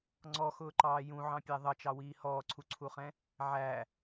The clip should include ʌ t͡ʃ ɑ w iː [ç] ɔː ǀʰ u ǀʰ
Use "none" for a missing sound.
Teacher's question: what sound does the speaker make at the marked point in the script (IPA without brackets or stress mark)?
h